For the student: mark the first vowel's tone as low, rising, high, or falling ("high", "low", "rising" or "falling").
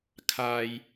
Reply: low